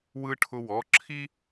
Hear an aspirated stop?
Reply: yes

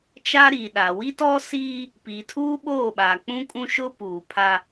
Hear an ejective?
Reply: yes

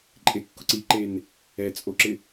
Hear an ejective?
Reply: yes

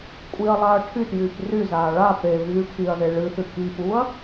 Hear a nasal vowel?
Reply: no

